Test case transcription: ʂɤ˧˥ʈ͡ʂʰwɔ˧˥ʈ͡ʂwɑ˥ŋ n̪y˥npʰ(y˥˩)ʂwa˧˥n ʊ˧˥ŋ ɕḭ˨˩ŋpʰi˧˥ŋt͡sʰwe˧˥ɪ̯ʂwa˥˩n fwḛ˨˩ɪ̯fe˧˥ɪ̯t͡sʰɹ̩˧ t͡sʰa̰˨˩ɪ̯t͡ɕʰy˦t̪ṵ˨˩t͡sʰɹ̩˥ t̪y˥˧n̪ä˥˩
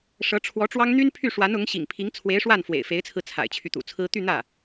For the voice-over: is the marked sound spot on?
yes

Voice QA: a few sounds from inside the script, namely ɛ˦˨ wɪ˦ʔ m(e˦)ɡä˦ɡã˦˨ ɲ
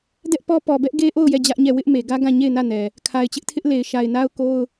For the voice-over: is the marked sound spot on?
no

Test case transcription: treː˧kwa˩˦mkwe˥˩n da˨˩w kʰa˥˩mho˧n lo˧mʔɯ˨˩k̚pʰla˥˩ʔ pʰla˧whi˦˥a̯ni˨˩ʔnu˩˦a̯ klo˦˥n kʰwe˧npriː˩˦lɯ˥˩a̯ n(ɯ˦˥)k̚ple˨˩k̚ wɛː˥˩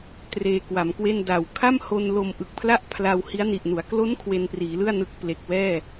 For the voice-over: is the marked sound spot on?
yes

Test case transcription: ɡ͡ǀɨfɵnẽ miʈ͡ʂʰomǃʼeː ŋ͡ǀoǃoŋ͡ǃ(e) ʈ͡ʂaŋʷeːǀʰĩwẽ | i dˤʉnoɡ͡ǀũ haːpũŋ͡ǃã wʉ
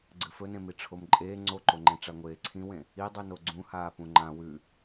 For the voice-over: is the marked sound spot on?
no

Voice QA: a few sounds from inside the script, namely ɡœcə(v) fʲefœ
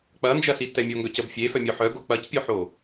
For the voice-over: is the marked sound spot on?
no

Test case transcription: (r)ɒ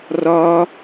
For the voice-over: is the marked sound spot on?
yes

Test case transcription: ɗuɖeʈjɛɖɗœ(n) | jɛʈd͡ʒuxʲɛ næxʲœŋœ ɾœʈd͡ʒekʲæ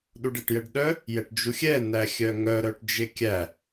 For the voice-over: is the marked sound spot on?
no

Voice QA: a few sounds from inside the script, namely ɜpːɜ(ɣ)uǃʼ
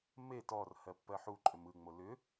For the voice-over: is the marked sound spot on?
no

